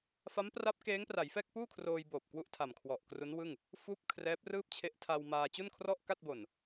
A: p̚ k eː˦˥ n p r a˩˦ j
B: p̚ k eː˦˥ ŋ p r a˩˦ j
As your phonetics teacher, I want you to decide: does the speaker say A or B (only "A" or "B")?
B